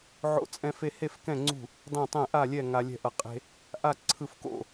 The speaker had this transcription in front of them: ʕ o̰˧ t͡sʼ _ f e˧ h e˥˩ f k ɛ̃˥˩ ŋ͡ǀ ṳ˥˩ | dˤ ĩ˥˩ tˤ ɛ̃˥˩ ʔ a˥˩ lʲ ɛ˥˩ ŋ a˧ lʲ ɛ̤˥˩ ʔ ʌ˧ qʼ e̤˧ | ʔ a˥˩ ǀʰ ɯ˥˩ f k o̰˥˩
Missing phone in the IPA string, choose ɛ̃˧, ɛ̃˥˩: ɛ̃˧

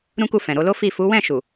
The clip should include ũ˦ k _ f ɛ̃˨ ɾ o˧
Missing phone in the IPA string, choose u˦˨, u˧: u˦˨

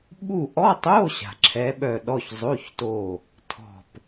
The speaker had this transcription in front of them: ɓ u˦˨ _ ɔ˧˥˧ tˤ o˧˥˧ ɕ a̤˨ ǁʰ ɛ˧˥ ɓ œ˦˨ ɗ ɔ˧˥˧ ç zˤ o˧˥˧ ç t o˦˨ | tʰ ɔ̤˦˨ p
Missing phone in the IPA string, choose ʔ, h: ʔ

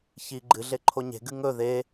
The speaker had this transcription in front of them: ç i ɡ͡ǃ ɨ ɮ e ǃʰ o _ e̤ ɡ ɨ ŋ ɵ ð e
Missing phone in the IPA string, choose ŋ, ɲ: ɲ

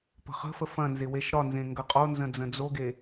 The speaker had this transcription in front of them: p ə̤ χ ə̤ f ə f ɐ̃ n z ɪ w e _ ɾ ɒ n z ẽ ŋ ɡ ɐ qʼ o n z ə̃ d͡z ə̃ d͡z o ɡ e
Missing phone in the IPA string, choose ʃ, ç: ʃ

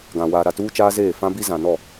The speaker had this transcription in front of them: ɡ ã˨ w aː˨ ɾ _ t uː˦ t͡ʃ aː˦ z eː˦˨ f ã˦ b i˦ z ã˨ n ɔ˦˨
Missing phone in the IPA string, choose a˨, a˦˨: a˦˨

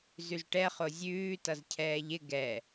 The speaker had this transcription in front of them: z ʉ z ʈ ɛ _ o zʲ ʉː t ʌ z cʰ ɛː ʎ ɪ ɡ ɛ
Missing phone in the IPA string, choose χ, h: χ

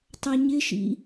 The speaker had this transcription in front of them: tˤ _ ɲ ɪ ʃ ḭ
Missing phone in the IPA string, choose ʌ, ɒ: ʌ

